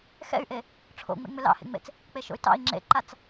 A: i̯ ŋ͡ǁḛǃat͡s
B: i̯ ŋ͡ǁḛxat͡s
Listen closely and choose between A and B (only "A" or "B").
A